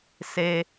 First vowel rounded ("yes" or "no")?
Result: no